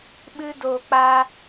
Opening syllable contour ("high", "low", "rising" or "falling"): high